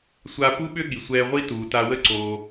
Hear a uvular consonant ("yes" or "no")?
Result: yes